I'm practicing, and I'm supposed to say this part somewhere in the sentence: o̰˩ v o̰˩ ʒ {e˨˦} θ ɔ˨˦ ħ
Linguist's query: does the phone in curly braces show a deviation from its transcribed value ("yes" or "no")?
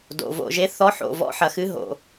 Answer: no